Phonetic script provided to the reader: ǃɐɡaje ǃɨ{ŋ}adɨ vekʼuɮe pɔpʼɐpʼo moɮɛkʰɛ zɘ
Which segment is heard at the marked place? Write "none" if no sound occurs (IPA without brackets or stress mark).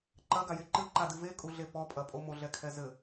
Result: ǃ